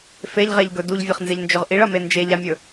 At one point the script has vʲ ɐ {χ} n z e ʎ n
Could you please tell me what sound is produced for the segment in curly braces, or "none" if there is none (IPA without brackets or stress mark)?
χ